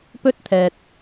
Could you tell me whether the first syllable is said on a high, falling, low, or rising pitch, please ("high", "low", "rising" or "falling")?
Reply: high